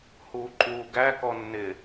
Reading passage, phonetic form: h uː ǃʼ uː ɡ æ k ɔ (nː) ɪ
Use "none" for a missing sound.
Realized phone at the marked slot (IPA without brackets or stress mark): nː